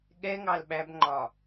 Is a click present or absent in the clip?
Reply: present